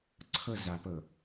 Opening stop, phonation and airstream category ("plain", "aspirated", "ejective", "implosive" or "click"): click